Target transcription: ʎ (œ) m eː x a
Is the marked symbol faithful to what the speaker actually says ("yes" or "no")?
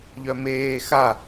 yes